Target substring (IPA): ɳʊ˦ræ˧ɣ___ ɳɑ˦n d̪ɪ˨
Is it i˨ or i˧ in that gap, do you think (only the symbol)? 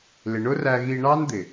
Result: i˧